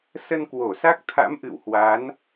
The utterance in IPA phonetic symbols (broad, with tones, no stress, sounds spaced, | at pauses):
s ə˧ n k w o˧˩ s a˦˥ k̚ t̪ʰ a̰˧˥ m ʔ ɨ̰˧˨ w h w a˨˦ n